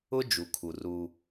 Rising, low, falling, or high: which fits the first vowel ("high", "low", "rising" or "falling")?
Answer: high